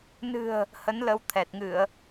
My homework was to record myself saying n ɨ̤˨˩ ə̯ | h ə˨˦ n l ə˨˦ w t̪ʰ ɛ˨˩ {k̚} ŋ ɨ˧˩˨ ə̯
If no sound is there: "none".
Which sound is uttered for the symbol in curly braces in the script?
t̚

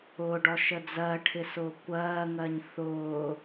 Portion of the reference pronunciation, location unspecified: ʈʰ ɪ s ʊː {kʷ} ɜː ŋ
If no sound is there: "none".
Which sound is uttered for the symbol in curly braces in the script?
kʷ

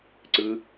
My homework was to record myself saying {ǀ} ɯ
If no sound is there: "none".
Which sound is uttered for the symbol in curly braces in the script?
ǀ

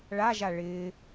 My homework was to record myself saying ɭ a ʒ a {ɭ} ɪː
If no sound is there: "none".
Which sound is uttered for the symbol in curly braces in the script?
ɭ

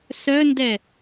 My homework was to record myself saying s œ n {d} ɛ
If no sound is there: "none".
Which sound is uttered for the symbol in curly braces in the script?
d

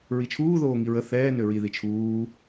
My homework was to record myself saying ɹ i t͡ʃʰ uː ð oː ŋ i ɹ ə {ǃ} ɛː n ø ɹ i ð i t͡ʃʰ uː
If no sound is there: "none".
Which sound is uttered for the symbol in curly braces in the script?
θ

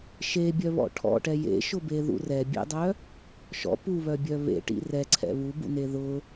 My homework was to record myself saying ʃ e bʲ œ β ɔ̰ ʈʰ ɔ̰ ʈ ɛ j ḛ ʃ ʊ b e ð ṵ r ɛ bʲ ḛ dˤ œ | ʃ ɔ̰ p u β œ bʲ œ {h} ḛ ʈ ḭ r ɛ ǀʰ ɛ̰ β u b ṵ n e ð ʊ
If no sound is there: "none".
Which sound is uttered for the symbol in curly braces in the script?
β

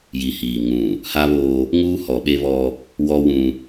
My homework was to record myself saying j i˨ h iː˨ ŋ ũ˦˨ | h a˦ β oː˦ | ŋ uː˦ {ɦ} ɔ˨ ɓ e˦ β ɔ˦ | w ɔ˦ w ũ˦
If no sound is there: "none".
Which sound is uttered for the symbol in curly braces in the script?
h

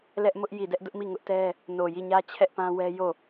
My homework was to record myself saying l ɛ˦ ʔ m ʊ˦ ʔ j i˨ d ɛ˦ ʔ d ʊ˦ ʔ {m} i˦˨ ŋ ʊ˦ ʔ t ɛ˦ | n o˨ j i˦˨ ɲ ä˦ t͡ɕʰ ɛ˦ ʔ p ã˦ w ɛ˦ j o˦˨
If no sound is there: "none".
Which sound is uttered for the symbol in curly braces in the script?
m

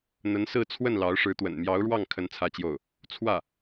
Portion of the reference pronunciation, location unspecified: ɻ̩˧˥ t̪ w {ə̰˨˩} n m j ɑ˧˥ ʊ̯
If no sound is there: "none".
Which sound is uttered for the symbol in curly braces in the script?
ə̰˨˩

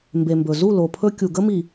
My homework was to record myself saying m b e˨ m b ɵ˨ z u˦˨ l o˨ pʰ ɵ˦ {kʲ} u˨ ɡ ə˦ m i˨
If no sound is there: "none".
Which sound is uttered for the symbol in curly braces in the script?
kʲ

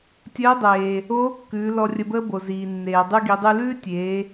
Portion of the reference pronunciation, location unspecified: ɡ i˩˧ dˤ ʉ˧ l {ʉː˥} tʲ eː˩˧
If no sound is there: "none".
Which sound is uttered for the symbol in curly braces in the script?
ʉː˥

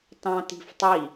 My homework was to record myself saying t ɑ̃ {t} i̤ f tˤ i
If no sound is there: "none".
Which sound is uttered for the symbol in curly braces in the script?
t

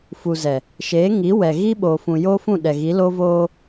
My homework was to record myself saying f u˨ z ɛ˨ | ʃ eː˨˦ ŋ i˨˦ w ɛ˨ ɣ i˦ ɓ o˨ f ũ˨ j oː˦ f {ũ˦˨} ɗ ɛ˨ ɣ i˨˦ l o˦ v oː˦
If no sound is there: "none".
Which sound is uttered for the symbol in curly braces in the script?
ũ˦˨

